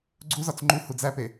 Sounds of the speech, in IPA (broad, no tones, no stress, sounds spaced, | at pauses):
ɡ͡ǀ u z ɒ t͡s ŋ͡ǃ u h u d͡z æ p e